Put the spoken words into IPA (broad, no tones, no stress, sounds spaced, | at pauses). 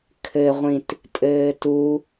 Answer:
kʰ ɘ ʁʷ ĩ t | tʼ ɘː t u